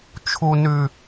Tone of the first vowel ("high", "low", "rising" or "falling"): high